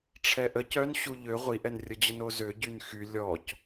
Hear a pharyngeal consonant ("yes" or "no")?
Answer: no